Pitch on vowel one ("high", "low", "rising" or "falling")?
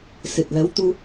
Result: low